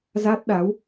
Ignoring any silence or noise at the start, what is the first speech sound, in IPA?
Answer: z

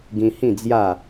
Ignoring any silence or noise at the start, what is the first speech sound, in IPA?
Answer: ɡ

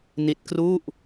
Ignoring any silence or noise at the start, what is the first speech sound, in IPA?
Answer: n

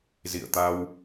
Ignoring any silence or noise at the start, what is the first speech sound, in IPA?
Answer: z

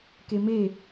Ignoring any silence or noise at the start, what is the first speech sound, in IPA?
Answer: k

